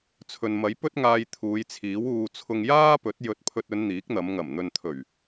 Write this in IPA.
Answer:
t͡sʰ ɵ˨ n m ɐ˨˥ j p ɵ˥ t̚ ŋ aː˧ j t̪ʰ uː˨˧ j t͡sʰ iː˨˥ w uː˧ t͡sʰ ʊ˧ ŋ j aː˥ p ɵ˨˥ t̚ j ɵ˨˥ t̚ pʰ ɵ˧ t̚ ɵ˨˧ n n̪ iː˨˥ k̚ n̪ ɐ˨˧ m ŋ ɐ˨˩ m n̪ ɵ˨ n t̪ʰ ɵ˨˩ ɥ

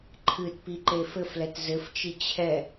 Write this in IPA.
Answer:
ǃʰ ɨ t p i ǃ e f ɘ f l ɛ t z ɘ f t͡ʃ i t͡ɕʰ ɛ

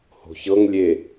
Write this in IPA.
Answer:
h o̤ ç ɤ ŋ lʲ e

